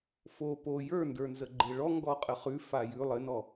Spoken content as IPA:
f o p o j ə˞ n d ə˞ n z ə ɡ͡ǃ e ɭ ɔ ŋ ɡ ɔ qʼ ə χ ʉ f a j ʉ lˠ ɘ n ɔ

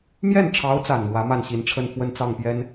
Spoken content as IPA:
m j ɛ˥˩ n ʈ͡ʂʰ ɑ˧˥ ʊ̯ t͡s a˨˩ n m w ä˧˥ m a˥˩ n ɕ i˧˥ n ʈ͡ʂʰ ə˥˧ n f w ə˥˧ n t͡s ɑ˥˩ ŋ p j ɛ˥ n

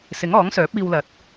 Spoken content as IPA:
s ɪ˨˥ ŋ ɔː˨˥ ŋ s œː˨˥ p̚ iː˧ w l ɐ˨˥ t̚

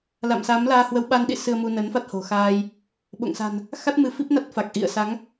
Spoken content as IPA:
l a̰˧˨ m s a˨˦ m l aː˧ h w ə˨˦ w ɓ a˧ n ɗ ḭ˧˨ s ɨ˧ ə̯ m u˧ n ə˨˦ n f a˦˥ t̚ h o̤˨˩ x aː˧ j | ɓ o̰˧˨ ŋ s a̤˨˩ n | x a˦˥ t̚ m ɨ˨˦ f i˦˥ p̚ n a˦˥ t̚ f a˨˩ k̚ ʔ ḭ˧˨ ə̯ s a˨˦ ŋ

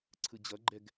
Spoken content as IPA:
ǀʰ ɯ d͡ʑ ʌ ɡ͡ǃ ɛ ɡ

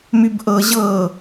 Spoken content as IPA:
m y b ʔ ɤ ʑ ɤ

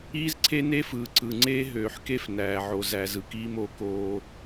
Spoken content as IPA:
iː˦ z ǀʰ e˦ n eː˦ f ɯː˨ ǀ ɯ˨ ŋ͡ǀ eː˦ ɦ øː˨ ħ k e˦ f n æː˨ ʕ o˨ z æ˨ z ɯ˨ k iː˦ m o˨˦ k oː˦

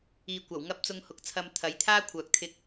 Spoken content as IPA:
iː˨ kʷ ɐ˨˩ w ŋ ɐ˧ p̚ t͡s ʊ˧ ŋ h ʊ˨ k̚ t͡sʰ ɐ˧ m t̪ʰ ɐ˨˥ j t̪ʰ aː˥ kʷʰ œː˨ k̚ t̪ʰ ɪ˧ k̚

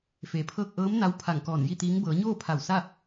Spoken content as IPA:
f eː˩ pʰ ɤː˥˨ k̚ ʔ ɤː˧˥ m n a˧˥ w pʰ a˧˩ ŋ k ɔː˧˩ n j i˥˨ t̪ iː˧˥ ŋ b ɤː˩˧ ɲ oː˥˨ pʰ a˧˩ w s a˥˨

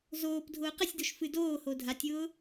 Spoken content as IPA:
z oː p dʱ ʊː q ə sʲ d o ʃ f ɨ d oː h o dʱ a tʲ ʊː

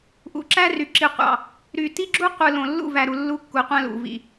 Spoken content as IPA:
ʔ ṵ˨ ǁ æ˦ r y˨ ǁ i˨ qʷ ɑ̰˨ | ɾ y˨ t i˦ ɡ͡ǁ u˦ qʷ ɯ˨ l õ˨ lː ṵ˦˨ v æ˨ ɾ u˨ lː u˦ kː u˨ qʷ æ̃˦ l ṵ˨ v ḭ˨

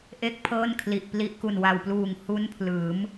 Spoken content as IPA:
ʔ e˥˩ k̚ pʰ ɤː˥˩ n kʰ l i˨˩ ʔ p l i˦˥ ʔ k u˨˩ n w a˨˩ w p l uː˨˩ ŋ h u˦˥ n pʰ l ɯː˩˦ m

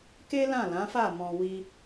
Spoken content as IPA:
k e˦ l ã˦˨ l ã˨˦ f a˦˨ m ɔ̃˧ w i˦

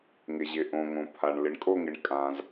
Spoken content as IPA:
ŋ ɪ˩ ʑ ɪ˩ ʔ õ˩ ŋ õ˩ pʰ a˩ ɳ l ɪ˩ ɳ kʼ o˦˨ ŋ ɪ˩ ɳ kʼ ã˩ z

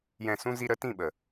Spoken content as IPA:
j ɛ̃˦˨ s ũ˦ z i˦ ɾ ə˨˦ t ĩ˦˨ ɓ ə˨

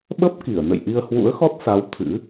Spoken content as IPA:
ɓ ə˦˥ p̚ k i˧˩ ə̯ n ə̰˧˨ j ʔ i˧ ə̯ h w ṵ˧˥ ə̯ x ɔ˦˥ t̚ s a˨˦ w t̪ʰ ɨ̰˧˥

